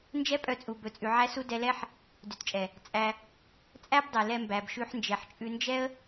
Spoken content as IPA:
nd͡ʒɛ˦pʼœ˧t͡sʼu˨ bɵ˨t͡sʼʉ˨ ʕæ˦su˦ dɛ˧lɛ˦ħ | dʉ˨tt͡ʃʼɛ˨ | t͡sʼæ˧ | t͡sʼæ˦bdˤɛ˨ lɛ˧mbæ˨b ʃʉ˧ħnd͡ʒɛ˨ħt͡ʃʼʉ˧ nd͡ʒɛ˦ə̯

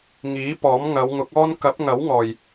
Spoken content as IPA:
ŋiː˨˥pɔː˨˥m ŋɐ˨˧wŋʊ˨˥k̚ɔː˥n kɐ˨˥p̚ŋɐ˨˥wŋɔː˨j

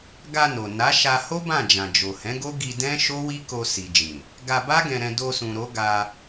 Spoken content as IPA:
ɡa˧no˨ na˨˦ʃa˧ ho˦ bã˦˨d͡ʒã˨d͡ʒo˨ hɛ̃˨˦ɡo˦ ɡi˧dɛ̃˦ ʃo˦wi˦ko˧ si˨d͡ʒĩ˨ | ɡa˧ba˦ɡɛ̃˧ɾɛ̃˧ do˧sũ˨ɾo˨˦ ɡa˧

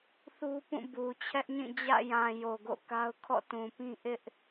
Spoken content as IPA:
θu˦pũ˦˨ bu˨ t͡ɕʰɛ˦ʔɲĩ˦˨ d͡ʑä̰˦˨jã˨ jo˨ɡo̰˦˨ka˦ʊ̯ kʰɔ̰˦˨ tũ˨pĩ˦ ʔɪ˦ʔ

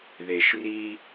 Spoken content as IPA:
ðe˨ʃri˦

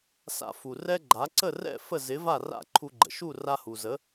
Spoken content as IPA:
sa̰˧fu˩rɛ˥ɡ͡ǃa˩˥ ǀə˥˩rɛ̰˥˩ fə˥˩zɪ˩˥va˥˩ ra̰˥˩ ǃʰu˧ɡ͡ǃə̰˩ ʃu˥˩ ra˧hu˩zə˩˥

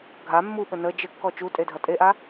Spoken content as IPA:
ɡʱa mːuɓə nə d͡ʒəkːɔ t͡ʃutʼedʱɐ tʼeʔa

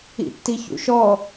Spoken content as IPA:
ḭtːiçṵʃɔ

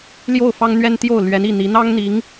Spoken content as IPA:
ljo˥˩ʊ̯fɑ˥ŋn̪ɥɛ˥nt̪jo˥˩ʊ̯ lɥɛ˧˥ni˥˩n̪i˧˥ n̪ɑ˥ŋn̪i˧˥ŋ

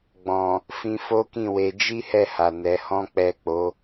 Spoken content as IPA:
ɡ͡bɔ̃˨ | fĩ˦ fo˦kĩ˦˨we˧ d͡ʒi˦hɛ˦˨ha˨ nɛ˨˦hɔ̃˦k͡pɛ˦˨k͡po˨˦

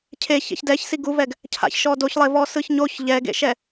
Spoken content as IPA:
cʰe çɛ̰çdɛçsi ɡuvɛɡ | cʰa̰çʃɔ doçlˠevɔ sɯçɲoç ʎɛɡḛʃɛ

